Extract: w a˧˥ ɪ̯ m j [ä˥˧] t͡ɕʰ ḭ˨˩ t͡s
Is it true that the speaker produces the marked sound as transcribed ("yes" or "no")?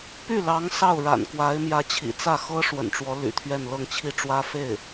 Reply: no